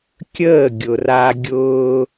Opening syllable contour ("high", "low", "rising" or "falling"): falling